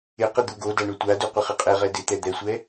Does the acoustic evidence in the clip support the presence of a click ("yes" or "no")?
no